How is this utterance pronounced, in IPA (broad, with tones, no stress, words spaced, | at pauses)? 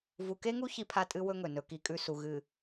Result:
vu˨ke˦ŋu˦ çi˦pʰa˦tʼɨ˦ wɵ˦ŋɵ˨ nɵ˦ki˦kʼʉ˦ su˨ɣɨ˨